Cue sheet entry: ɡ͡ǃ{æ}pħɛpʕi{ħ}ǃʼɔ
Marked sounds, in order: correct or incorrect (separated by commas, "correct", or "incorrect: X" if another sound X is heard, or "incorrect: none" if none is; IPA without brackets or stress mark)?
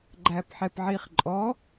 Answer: correct, incorrect: χ